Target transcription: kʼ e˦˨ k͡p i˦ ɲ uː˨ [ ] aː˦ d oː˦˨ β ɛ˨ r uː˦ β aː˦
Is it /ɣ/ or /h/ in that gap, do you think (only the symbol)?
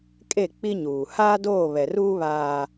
h